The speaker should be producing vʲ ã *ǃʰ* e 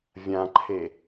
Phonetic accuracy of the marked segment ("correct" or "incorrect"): correct